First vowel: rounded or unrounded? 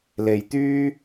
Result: unrounded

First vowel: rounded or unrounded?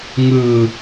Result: unrounded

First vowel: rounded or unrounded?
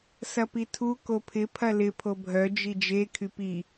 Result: unrounded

